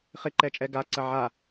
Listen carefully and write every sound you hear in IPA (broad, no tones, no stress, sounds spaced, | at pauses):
χ ɪ ǃ ɛ t͡ʃʼ ɛ ɡ a ǀ ɐ ʕ a